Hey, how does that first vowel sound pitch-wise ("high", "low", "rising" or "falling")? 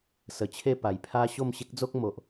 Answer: low